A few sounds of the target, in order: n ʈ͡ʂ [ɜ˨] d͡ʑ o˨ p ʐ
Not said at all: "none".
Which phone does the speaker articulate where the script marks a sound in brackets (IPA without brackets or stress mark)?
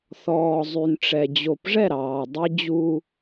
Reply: ɛ˨